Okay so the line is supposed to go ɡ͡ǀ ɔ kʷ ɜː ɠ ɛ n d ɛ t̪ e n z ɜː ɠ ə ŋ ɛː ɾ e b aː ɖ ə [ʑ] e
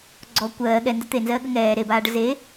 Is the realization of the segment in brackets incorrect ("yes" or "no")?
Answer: yes